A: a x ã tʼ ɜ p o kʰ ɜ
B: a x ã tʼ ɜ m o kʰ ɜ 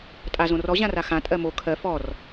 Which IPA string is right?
B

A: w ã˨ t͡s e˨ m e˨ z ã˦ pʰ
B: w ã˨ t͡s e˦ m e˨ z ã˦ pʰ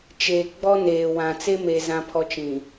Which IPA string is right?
B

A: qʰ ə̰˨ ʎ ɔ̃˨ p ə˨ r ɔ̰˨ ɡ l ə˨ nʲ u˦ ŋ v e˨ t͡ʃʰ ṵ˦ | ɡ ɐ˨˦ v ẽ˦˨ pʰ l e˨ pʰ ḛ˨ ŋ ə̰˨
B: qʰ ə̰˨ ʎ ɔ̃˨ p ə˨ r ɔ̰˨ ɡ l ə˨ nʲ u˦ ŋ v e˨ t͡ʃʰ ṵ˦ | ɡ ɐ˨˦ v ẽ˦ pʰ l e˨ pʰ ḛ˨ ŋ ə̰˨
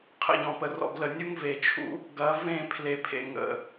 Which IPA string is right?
A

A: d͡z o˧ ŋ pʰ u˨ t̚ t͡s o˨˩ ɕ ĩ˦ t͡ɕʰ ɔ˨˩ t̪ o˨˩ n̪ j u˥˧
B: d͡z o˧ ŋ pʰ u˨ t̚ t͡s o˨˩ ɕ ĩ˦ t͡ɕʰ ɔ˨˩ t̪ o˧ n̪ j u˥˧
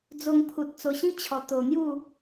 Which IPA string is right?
A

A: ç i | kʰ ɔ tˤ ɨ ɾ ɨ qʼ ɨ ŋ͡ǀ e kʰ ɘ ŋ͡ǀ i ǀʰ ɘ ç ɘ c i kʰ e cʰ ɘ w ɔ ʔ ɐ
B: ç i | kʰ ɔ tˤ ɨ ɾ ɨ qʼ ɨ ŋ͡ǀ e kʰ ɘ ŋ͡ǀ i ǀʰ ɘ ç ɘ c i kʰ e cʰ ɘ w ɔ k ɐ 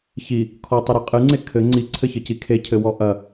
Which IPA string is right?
A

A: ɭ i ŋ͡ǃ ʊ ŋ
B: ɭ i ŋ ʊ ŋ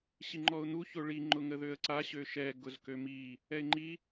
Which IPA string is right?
A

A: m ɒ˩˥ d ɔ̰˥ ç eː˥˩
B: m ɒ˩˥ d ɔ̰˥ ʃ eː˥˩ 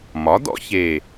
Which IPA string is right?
A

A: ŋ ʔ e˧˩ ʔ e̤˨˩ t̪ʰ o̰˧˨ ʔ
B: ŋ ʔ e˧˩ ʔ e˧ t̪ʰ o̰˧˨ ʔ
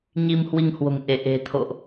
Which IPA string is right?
A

